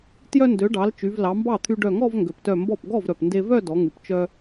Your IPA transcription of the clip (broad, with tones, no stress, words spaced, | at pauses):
tjœ˧ndø˩˧ɖɑ˩˧l t͡ʃy˩˧vlɑ˩˧mbɑ˥˩t̪ʰy˧ ɖœ˧˩ŋɔ˥˧vŋɡø˩ptœ˧˩ mbɔ˥˩p ɡɔ˥˩vɾœ˩pnde˧vœ˥˧ dɔ˩˧ŋy˩pt͡ʃœ˧